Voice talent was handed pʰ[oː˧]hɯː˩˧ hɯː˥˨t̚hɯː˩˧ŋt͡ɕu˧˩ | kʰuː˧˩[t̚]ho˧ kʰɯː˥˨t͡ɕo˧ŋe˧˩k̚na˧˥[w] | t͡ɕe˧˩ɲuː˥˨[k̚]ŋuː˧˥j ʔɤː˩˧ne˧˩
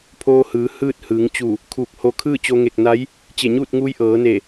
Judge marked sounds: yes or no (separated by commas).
yes, no, no, no